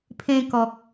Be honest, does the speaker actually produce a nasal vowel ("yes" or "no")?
yes